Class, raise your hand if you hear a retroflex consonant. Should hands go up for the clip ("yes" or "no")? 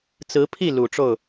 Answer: yes